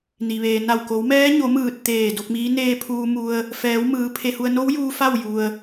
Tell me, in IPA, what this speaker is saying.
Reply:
ni˩ʋeː˩na˧˩w ko˩˧wmɛː˧˥ ɲo˩˧mɯː˧˩t̚ t̪eː˧˩ do˧k̚miː˧˥ neː˧pʰuː˧mu˧ə̯ | fɛː˩˧wmɯː˩˧ pʰe˧hu˧ə̯ no˧˥w juː˧fa˥˨w ju˧ə̯

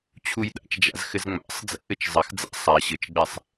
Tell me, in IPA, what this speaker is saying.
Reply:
t͡ɕʰujɗa̰t͡ʃd͡ʒa̰z xɘzŋ͡ma̰sˤd͡zɛ̰ ʔɘt͡ʃzˤɘxd͡za̰ sˤa ɕɘt͡ʃɡ͡bɛsˤ

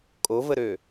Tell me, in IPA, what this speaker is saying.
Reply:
kʼovəɾø

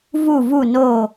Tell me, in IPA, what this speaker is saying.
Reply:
vu˧˩vu˧˩no˧˩

